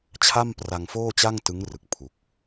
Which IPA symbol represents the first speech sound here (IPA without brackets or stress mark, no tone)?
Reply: t͡ɕʰ